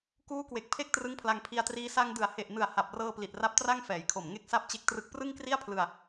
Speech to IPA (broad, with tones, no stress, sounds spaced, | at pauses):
k uː˦˥ k w e˨˩ k̚ pʰ e˥˩ k̚ t r ɯ˦˥ ŋ pʰ l a˧ ŋ pʰ i˧ a̯ t r iː˦˥ s a˧ ŋ d ɯ˨˩ a̯ h e˨˩ ʔ n ɯ˨˩ a̯ h a˨˩ p̚ r ɤː˧ p l i˨˩ t̚ r a˦˥ p̚ t r a˥˩ ŋ f ɛː˩˦ j kʰ o˨˩ m ŋ e˥˩ k̚ s a˥˩ p̚ t͡ɕ e˦˥ k̚ t r ɯ˦˥ k̚ p r ɯ˥˩ ŋ k r i˥˩ a̯ pʰ l ɯ˧ a̯